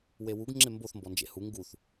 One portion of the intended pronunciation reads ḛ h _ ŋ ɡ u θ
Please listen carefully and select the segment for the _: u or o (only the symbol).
u